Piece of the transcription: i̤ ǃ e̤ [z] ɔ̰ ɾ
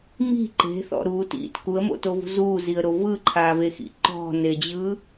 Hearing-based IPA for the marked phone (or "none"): θ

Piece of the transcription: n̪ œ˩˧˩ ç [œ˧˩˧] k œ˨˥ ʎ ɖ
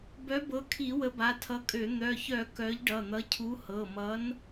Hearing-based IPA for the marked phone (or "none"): œ˧˩˧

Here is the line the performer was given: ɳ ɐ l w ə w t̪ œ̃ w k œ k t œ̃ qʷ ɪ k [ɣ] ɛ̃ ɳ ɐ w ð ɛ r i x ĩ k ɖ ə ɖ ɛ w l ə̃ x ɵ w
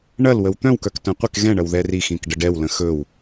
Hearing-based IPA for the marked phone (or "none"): ɣ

